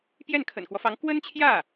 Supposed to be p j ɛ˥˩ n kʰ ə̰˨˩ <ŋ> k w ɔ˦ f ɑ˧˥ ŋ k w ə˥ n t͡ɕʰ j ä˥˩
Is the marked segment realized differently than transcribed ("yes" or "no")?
yes